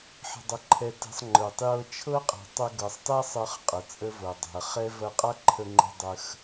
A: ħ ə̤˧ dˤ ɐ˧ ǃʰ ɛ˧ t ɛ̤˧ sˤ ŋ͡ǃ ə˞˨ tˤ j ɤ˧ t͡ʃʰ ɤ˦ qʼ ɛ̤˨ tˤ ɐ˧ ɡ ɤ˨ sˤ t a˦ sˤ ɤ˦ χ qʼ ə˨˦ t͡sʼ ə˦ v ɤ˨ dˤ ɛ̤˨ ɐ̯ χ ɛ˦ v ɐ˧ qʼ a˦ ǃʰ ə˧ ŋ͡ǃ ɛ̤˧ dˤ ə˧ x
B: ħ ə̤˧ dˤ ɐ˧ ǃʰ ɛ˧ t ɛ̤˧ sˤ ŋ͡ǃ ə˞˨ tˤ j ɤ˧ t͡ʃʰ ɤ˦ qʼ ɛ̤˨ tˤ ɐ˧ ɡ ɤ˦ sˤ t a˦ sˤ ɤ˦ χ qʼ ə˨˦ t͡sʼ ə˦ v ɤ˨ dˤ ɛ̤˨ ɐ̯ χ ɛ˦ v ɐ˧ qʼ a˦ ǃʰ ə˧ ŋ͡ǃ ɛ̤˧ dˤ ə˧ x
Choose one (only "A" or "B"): A